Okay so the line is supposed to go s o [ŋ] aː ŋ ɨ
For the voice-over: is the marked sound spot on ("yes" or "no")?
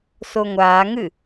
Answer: no